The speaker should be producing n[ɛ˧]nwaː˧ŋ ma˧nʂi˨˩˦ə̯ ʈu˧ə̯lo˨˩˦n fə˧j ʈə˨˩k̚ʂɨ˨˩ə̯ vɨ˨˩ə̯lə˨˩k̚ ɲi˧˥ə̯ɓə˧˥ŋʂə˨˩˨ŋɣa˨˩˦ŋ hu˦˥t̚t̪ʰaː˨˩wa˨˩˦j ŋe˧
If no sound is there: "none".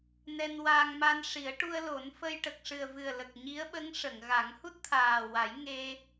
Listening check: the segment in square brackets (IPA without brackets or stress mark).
ɛ˧